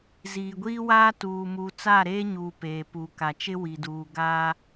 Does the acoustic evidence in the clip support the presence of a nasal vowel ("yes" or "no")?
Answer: no